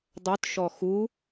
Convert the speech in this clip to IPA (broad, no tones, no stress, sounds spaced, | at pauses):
dˤ ɵ t ʃ ɔ x u